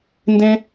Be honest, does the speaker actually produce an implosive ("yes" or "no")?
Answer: no